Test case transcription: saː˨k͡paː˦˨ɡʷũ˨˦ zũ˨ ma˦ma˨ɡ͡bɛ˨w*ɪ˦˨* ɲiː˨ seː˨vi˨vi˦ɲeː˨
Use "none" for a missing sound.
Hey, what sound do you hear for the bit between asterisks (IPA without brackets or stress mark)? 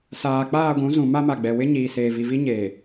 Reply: ɪ˦